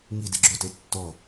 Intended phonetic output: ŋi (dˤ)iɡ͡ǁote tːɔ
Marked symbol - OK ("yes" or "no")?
no